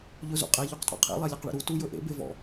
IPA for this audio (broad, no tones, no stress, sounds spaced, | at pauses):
ʎ ɵ z ṵ qʼ e ʎ u q tʼ ɔ̰ qʰ ḛ lˠ e lʲ e q ɭ ḛ ɾ u t u j ɵ ʔ ḛ b e v ɔ̰